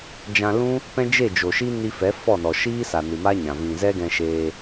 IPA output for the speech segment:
d͡ʒã˧lũ˦ | pɛ̃˦d͡ʒe˦˨ d͡ʒo˨ʃi˦ ni˧ fɛ˨˦ fɔ˦˨nɔ˨ ʃiː˦ sa˨nɨ˨ma˦ɲã˨ vĩ˨zɛ˦ɡɛ̃˧ʃeː˧

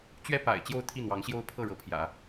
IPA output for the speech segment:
t͡ɕɥɛ˥ pa̰˨˩ɪ̯ t͡ɕjo˥˧ʊ̯t̪ʰi˥˩n̪wɑ˧˥ŋɕjo˥ʊ̯ pʰɤ˥˩ɻɤ˧˥pʰjä̰˨˩˦

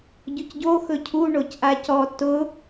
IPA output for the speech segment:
ɟʊcɟo xɵcʰu ɳocʔacɔ tʊ

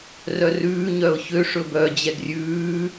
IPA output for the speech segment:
rœrʉː ɲœʊ̯çø ʂɵbœ d͡ʑɛɡrʲʉː

